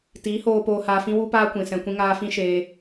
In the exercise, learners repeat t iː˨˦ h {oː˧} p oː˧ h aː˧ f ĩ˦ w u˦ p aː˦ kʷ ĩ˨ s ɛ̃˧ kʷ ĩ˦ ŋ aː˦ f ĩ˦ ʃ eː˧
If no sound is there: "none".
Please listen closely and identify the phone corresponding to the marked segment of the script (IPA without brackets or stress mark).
oː˧